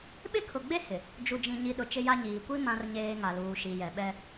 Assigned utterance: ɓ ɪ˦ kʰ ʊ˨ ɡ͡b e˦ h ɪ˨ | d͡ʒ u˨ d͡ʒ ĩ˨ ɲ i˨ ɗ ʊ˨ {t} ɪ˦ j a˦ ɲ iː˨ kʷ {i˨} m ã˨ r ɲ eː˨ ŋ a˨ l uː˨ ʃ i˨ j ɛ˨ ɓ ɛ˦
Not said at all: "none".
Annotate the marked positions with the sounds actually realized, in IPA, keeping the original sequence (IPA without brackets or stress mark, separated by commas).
t͡ʃ, i˦